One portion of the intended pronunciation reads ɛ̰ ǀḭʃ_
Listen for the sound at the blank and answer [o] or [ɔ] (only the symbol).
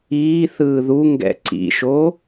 o